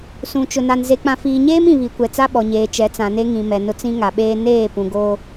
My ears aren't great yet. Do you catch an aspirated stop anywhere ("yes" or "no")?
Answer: no